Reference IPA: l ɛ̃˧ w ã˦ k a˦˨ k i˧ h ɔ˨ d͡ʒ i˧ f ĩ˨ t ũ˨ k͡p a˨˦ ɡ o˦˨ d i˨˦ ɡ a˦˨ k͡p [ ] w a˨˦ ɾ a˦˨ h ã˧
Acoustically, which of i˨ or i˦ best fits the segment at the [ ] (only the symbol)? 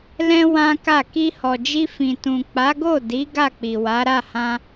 i˨